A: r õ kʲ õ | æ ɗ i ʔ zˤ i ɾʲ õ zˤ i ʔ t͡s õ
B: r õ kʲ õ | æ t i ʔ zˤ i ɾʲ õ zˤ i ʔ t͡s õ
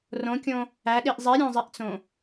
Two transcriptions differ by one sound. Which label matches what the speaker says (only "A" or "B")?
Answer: A